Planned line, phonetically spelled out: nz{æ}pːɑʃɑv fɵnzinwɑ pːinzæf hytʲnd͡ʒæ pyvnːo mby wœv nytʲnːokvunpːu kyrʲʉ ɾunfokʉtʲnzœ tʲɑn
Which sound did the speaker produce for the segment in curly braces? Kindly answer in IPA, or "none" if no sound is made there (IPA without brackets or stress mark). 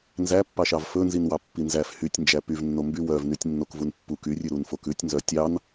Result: æ